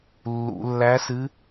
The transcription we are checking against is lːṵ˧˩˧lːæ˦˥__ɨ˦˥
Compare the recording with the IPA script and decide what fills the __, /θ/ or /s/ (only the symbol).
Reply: s